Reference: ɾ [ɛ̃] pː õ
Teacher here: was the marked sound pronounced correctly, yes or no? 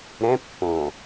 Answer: yes